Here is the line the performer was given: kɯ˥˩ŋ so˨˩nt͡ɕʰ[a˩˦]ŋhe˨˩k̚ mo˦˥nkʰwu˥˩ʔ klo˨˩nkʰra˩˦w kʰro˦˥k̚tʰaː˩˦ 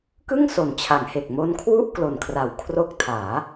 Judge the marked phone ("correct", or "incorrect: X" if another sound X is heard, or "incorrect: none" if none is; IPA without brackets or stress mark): correct